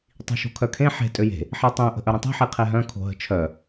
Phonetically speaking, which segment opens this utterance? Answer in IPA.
tˤ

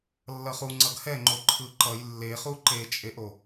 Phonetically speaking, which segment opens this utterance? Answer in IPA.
lː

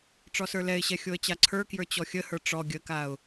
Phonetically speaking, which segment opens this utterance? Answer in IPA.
ʈ͡ʂ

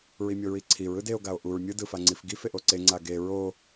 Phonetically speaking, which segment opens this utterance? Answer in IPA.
ɹ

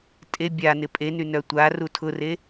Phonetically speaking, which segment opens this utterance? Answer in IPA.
tʼ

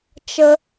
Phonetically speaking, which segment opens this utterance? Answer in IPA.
t͡ʃ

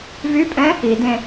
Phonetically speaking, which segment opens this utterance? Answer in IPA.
v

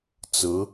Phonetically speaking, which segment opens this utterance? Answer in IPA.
t͡s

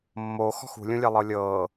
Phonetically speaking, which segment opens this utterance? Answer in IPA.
mː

